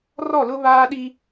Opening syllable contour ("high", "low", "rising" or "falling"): falling